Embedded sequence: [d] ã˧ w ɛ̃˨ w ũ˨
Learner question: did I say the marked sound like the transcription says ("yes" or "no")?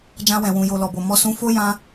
no